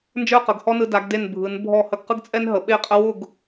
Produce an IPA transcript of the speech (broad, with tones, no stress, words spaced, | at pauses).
nd͡ʒə˞˥˧qə˩˧ɡhɔ˥nɯ˧ da˩˧ɡde˧˩n bʱɯ˩˧n bʱɔ˧˩hə˧˩ɡ qɯ˥ɡt͡sʼɛ˥n ɦə˩˧ɓe˥˧qʼə˥ wʊ˥˧ɡ